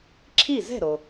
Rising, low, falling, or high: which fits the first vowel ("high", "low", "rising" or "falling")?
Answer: falling